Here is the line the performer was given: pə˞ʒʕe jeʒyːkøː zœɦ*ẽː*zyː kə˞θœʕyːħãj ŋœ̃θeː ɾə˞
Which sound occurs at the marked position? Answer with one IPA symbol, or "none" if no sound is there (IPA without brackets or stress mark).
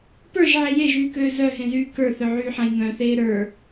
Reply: ẽ